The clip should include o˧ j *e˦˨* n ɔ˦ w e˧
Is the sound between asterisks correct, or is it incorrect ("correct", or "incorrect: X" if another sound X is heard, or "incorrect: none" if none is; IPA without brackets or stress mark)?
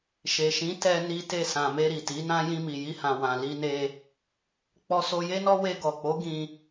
incorrect: e˦